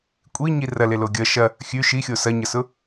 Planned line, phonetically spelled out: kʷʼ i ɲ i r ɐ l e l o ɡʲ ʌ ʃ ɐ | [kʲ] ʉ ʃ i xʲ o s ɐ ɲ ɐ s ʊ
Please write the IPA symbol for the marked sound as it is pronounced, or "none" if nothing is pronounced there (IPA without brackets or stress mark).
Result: xʲ